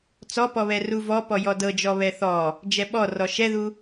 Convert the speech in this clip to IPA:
t͡sɔpɔβɛ ruvɔ pɔjɔdɤd͡ʒɔ βɛθɔ | d͡ʒɛɓɔrɔ ʃɛðu

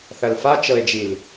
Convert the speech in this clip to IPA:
θɐlfat͡ʃɤe̯d͡ʒil

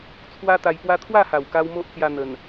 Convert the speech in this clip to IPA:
t͡sʰwa˦t̪a˧jpwa˦ t̪ʰwa˥˧ha˨˩wka˧w mo˦ʔt͡sja˧n̪ə˨˩n

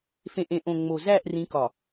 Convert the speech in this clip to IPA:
fẽ˨ʔẽ˨ ʔõ˨ŋ͡mo˨ zæ˦˨ʔ rĩ˨˦ kɒ˨

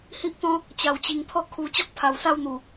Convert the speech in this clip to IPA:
hi˦ʔt̪ɔ̃˦ | t͡ɕa˨˩wt͡ɕi˨˩ŋt̪ʰɔ˥˧ kʰu˨˩ t͡ɕɔ˦k̚pʰa˨˩wsa˥˧wn̪u˨˩

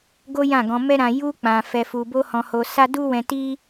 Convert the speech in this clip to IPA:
ɡo˦jã˦˨ɡɔ̃˧mɛ˦ ɾã˧ ju˦ k͡pã˧fɛ˧fu˧ bo˦hɔ̃˧ho˧ sa˦ du˦wɛ̃˧ti˦

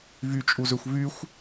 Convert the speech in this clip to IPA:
vy t͡ʃʼuzøxʷvyxʷ

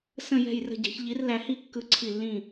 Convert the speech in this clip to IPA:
sə̃˥˧ jɛ̤˥˧jrə̤˥˧ɟɛ̤˧˥ç ʎi˧˥rlæ˧˥hi˥˧ kːɯ˥˧ǀʰi˥˧lːĩ˥˧

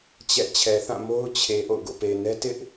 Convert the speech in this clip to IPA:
t͡ɕɛ̰˦˨ t͡ɕʰɛ˨θã˦˨ mo˦ʊ̯t͡ɕʰe˨ ʔo̰˦˨ʊ̯ɡo̰˦˨pe˨ɪ̯nɛ˦ tɪ˦ʔ

